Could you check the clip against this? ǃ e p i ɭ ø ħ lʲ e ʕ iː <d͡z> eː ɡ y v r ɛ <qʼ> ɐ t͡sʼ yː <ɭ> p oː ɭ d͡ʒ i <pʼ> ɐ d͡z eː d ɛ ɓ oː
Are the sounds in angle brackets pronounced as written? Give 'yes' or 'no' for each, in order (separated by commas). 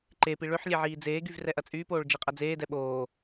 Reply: yes, no, no, no